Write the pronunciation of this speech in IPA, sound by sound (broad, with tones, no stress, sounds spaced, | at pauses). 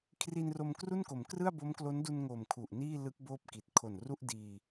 kʰ r i˧ n r o˧ m k r u˥˩ n k o˩˦ m k r ɯ˥˩ a̯ b o˦˥ m k l o˦˥ n d u˧ n ŋ o˨˩ m kʰ u˨˩ ʔ n iː˥˩ l ɯ˦˥ k̚ b oː˥˩ p̚ k i˨˩ t̚ kʰ o˨˩ n r u˥˩ ʔ d iː˧